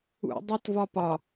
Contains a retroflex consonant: no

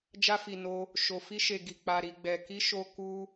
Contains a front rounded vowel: no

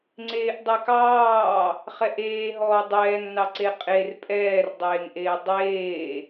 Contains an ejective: yes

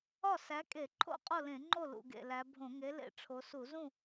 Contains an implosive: no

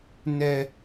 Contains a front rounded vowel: no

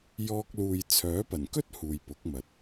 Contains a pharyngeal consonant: no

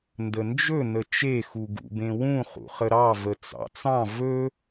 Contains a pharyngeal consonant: no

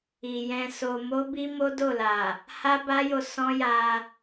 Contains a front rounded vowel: no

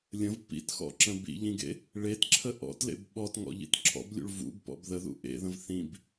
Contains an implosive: yes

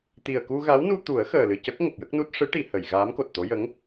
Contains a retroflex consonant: yes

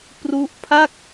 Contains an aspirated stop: yes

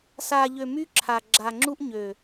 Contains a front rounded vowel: yes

